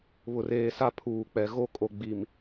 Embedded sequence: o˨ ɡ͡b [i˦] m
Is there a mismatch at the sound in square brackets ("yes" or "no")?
yes